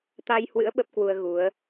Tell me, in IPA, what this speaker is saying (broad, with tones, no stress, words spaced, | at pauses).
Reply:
t̪a˧jhwɨ̰˧˥ə̯ ɓə˦˥p̚ kwu˧ə̯ɣu˨˦ə̯